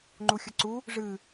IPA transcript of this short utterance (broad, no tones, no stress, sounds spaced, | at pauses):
ŋ͡ǃ u xʲ ɐ ǀ u | ʐ ɨ